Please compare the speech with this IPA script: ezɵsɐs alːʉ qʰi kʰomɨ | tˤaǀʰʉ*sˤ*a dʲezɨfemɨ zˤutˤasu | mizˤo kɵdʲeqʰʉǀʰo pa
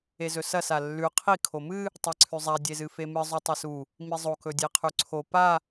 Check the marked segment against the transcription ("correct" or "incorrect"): incorrect